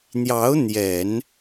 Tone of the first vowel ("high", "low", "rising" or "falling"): rising